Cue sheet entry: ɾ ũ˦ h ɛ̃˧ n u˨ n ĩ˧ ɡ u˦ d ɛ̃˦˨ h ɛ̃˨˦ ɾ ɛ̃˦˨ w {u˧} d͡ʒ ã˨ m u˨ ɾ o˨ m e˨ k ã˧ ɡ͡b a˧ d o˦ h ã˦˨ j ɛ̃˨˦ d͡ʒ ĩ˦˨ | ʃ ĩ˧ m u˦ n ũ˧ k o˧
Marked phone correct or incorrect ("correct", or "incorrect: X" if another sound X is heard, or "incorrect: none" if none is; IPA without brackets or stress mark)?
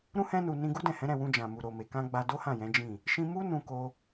incorrect: ũ˧